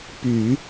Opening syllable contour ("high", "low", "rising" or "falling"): low